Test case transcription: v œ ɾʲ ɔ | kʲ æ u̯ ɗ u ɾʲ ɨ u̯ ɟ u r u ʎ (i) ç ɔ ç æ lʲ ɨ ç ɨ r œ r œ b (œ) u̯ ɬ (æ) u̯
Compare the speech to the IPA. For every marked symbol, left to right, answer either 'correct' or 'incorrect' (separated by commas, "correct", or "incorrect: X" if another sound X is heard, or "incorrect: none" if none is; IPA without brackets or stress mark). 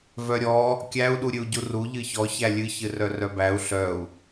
incorrect: ɨ, incorrect: æ, incorrect: œ